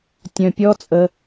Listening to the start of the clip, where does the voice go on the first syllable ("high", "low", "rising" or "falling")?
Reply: low